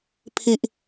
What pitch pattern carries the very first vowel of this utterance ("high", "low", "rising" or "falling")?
low